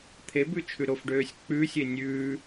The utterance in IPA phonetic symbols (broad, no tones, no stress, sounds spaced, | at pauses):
t̪ʰ e b ʉ t͡ʃʰ ʉ ɾ o f ɖ øː sʲ k͡p ʉ sʲ e nʲ ʉː